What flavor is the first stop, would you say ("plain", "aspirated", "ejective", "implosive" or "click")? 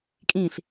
ejective